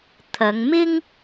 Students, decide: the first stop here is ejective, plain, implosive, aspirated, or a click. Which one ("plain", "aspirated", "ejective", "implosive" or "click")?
aspirated